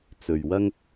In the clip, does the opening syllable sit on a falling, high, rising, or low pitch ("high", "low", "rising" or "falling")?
low